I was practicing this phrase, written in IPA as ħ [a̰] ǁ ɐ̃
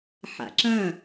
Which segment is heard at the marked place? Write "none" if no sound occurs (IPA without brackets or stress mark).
a̰